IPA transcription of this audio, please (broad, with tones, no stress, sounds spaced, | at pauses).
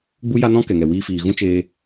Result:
ɡ͡b u˦ j a˦ n ɔ̃˦ k ɛ˨ ŋ ɛ˨ w iː˧ f iː˨ ɣ ũ˦ t͡ʃ eː˧